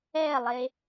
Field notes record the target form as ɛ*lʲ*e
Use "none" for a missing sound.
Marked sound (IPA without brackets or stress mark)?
lˠ